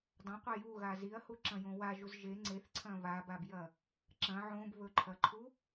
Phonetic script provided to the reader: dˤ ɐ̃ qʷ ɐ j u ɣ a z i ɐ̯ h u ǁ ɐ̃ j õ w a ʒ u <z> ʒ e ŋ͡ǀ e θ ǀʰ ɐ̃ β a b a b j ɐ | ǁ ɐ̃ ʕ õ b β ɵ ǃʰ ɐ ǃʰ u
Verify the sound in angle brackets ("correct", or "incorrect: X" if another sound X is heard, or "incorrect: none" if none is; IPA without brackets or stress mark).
correct